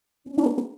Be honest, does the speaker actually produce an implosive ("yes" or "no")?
yes